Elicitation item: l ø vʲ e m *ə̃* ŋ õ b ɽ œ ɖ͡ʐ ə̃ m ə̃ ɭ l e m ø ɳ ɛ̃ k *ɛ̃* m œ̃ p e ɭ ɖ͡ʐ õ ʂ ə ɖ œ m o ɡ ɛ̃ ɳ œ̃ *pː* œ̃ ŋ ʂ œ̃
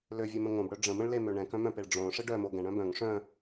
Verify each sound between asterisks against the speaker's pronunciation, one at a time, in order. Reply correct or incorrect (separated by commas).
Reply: correct, incorrect, incorrect